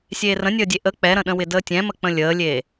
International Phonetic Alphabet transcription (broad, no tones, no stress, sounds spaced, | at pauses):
sʲ eː r ə̃ nʲ əː dʲ e ʔ ə k͡p ɛ ɾ ə̃ ɗ ə̃ w ɪ d əː tʲ ɛ̃ m ə k͡p ə̃ lʲ əː lʲ eː